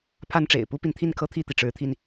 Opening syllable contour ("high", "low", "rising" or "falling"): high